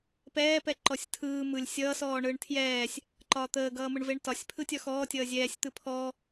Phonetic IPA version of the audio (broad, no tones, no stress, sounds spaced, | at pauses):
p ɛː p ɛ ǃ ɔ sʲ tʰ ɯː m ɯ lʲ sʲ ʌː s ɔː ɳ ɯː ɳ tʰ j ɛː sʲ | ǃ ɒː t̪ əː ɡ ʌː m ɯ ɳ v e ɳ t ɒ sʲ pʰ ɯ tʲ ɒ x ɔː tʲ ʌː zʲ ɛː sʲ t̪ ɯ pʰ ɔ